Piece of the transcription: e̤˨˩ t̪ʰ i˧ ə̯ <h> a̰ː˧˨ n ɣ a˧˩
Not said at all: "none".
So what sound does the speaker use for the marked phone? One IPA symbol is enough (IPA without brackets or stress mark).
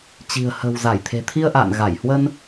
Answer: ʔ